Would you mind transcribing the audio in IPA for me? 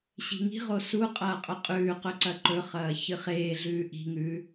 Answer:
ɕ i̤ ŋ i̤ ʁ o s u qʼ ɐː qʼ ɵ qʼ ʉː q ɵ ǀ ɐ ǃ ɵ χ ɐː ç ɨ χ eː ɮ ʉː ʔ i̤ ŋ ʉː

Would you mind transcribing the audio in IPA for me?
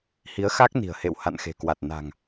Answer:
h i˨˦ ə̯ x a˦˥ k̚ n i̤˨˩ ə̯ h ḛ˧˨ w h a̰˧˨ n x e̤˨˩ k w a˨˩ t̚ n a̤˨˩ ŋ

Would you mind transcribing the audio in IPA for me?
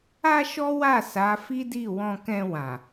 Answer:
a˦ ʃ ɔ˦ w a˦˨ s a˨˦ f i˦ d i˦˨ w ɔ̃˧ k ɛ̃˧ w ã˨

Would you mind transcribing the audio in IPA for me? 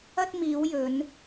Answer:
ɐ˧ t̚ m iː˨˧ w j ɵ˨˧ n

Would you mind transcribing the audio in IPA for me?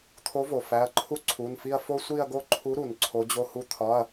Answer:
t̪ʰ o˨˥ v o˩ f æ˩˧˩ ɐ̯ ǃʰ u˦ ǀʰ u˩˧˩ n f i˦˨ ɐ̯ f o˦ sʷ i˦˨ ɐ̯ ɡ o˦ ǃʰ u˨˥ ɾ u˩ n ǀʰ o˨˥ d͡ʑ o˦ h u˦ t̪ʰ ɒ˩˧˩ ɐ̯

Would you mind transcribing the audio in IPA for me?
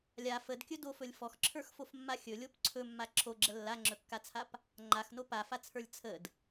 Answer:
lʲ a f ə d kʲ ɵ d o f ɵ lʲ f ɔ x ǁʰ ə˞ x f o f mː a xʲ ɵ lʲ o p ǀʰ ɵ mː a ǁʰ o ɡ͡ǁ ə lː a ŋ͡ǁ ɵ kː a t͡sʰ a p | ŋ͡ǃ a x n o p a f a t͡sʰ ə˞ lʲ t͡sʰ ə d

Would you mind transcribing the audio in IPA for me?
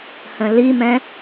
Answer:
h ə̃ l i m ɛ̃

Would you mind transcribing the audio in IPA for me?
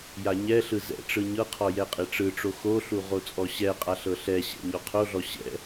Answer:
j a ɲ ɛ ɬ ɯ z ɛ̰ ʈ͡ʂ ɯ ɲ ɤ qʰ ɔ j ɛ qʼ e ʈ͡ʂ ɯ ʈ͡ʂ o x o ɬ u ʁ o t͡sʼ ɔ ɕ ɛ qʼ a ɬ ɤ ɬ ɛ ɕ ɛ̰ ɲ ɔ qʰ o ɮ ɔ ɕ ɛ̰

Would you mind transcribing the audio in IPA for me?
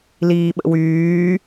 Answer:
l iː ɓ ə̰ w yː

